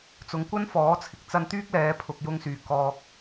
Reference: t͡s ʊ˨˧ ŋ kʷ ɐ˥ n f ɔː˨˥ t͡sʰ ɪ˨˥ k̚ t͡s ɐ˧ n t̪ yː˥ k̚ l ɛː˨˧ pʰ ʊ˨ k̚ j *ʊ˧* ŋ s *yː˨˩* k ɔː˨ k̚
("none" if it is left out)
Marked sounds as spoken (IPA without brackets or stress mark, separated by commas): ʊ˧, yː˨˩